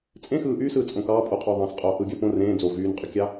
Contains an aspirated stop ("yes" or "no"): no